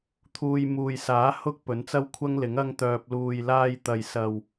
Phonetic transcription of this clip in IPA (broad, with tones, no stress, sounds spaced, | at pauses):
t̪ʰ uː˧ j m uː˨ j s aː˨˥ h ʊ˥ k̚ p ɵ˨˧ n t͡s ɐ˥ w kʷʰ ɐ˥ ŋ l ɪ˨˥ ŋ ɐ˥ ŋ t̪ œː˧ p̚ l uː˨ j l aː˧ j t̪ ɐ˨ j s ɐ˨ w